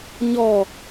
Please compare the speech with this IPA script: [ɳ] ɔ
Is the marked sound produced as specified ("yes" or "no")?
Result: no